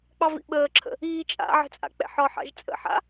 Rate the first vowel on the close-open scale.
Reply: open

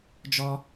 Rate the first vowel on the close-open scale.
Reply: mid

